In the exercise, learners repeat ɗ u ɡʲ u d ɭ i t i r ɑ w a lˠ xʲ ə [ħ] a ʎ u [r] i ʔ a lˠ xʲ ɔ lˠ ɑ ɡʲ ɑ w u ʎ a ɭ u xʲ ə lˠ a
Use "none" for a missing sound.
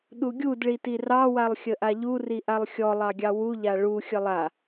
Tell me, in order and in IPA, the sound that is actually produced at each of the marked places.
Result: ʔ, r

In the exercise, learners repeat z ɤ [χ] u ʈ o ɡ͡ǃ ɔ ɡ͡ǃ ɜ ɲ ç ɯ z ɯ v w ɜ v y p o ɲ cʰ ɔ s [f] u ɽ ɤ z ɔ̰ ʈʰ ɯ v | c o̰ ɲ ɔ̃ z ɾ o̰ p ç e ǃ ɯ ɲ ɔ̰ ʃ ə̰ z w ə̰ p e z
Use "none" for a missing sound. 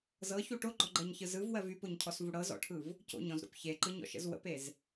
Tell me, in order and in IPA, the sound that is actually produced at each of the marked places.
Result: ç, v

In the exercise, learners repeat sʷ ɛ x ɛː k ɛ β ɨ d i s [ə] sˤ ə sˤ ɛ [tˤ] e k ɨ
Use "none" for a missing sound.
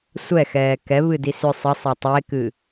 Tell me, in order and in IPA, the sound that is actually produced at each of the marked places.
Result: ʏ, tˤ

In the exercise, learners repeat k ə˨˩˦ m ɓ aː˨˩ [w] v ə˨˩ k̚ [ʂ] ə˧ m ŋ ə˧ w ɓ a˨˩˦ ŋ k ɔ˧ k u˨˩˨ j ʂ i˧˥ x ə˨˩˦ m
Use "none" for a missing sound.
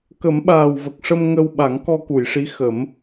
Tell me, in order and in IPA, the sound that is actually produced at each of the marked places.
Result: w, ʂ

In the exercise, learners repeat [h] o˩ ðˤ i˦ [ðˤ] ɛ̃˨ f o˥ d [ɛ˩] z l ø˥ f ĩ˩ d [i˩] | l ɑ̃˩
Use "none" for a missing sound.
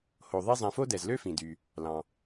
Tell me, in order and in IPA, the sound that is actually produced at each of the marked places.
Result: h, zˤ, ɛ˩, y˩

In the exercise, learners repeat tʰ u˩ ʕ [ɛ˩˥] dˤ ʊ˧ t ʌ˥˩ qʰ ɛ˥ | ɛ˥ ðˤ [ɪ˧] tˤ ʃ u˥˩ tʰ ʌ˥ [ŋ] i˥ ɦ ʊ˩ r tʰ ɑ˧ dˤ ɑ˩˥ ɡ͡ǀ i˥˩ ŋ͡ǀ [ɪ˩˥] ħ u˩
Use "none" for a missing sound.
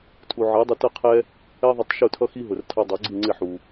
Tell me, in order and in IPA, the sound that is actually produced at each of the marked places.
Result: ɜ˩˥, ɪ˧, x, ɪ˥˩

